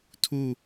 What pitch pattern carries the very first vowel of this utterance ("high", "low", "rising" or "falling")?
falling